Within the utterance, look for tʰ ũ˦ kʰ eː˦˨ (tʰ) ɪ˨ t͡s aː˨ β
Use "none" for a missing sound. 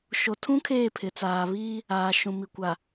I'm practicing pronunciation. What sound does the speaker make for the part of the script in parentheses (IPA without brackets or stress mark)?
pʰ